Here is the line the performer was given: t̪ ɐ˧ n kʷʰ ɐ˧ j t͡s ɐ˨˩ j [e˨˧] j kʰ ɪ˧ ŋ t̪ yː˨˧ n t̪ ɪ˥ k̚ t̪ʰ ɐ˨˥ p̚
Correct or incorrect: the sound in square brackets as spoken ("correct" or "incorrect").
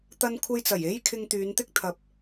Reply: incorrect